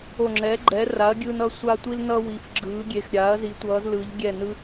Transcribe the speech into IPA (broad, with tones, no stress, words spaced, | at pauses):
o˧˩ŋ͡ǁɛ˩˥ ɡ͡ǃɛ˩˥ra˩˥ɐ̯ɡʲɯː˧n ʌ˩˥ sʷa˧tʷi˧lnʌ˧ wi˩˧fɡ͡ǁɯː˩˧ɡʲe˩˧x ɾʲa˩˥ɐ̯ zi˩˥tʷʌː˩˧zlɯ˩˧ʎ ɡʲɛ˧˩nɯ˧